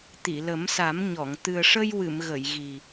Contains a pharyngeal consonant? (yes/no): no